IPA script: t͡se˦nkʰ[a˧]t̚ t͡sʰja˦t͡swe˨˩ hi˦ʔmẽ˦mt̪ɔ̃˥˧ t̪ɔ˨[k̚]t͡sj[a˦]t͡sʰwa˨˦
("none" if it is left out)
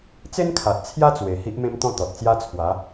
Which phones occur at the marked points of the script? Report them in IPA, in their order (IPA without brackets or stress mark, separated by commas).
a˨, t̚, a˦